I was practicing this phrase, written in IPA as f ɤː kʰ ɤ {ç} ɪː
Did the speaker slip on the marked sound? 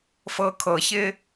no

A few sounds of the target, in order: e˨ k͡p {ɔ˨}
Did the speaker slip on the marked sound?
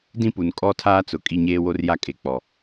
no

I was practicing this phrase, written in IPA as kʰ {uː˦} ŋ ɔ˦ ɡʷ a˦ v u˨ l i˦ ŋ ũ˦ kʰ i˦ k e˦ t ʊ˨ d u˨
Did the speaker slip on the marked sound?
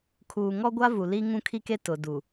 yes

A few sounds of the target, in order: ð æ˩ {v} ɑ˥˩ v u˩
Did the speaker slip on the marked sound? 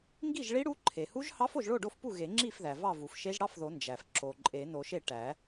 no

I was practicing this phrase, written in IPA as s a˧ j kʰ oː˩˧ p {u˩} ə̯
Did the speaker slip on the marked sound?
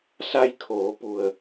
no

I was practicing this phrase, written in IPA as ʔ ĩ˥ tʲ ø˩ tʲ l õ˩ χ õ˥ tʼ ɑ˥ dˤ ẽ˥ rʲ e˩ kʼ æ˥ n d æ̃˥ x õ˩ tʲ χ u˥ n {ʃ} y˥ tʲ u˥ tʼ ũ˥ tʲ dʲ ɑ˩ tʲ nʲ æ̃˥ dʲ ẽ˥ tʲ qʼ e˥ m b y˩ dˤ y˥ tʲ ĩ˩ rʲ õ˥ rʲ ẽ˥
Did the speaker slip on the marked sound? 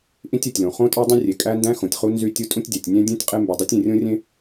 yes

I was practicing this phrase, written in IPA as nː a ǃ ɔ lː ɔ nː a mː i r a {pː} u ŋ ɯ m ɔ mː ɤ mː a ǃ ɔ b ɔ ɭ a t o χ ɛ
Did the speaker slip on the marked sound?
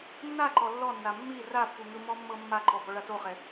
no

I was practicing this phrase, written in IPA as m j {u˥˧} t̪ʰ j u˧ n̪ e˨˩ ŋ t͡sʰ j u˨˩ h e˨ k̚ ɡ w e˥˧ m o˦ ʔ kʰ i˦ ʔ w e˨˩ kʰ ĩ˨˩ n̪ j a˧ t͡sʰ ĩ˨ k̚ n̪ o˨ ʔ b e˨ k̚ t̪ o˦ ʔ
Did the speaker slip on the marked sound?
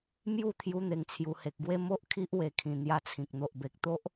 no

